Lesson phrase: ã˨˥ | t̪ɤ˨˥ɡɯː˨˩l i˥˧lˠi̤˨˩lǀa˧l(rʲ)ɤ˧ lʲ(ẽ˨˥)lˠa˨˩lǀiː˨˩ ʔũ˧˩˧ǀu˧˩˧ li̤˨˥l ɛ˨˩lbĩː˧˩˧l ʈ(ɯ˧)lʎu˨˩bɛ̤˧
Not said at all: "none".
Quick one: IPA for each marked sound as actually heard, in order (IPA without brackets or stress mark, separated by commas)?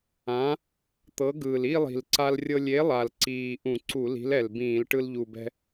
rʲ, e˨˥, ɯ˧